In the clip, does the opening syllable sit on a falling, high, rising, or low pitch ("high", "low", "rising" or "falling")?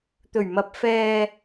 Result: low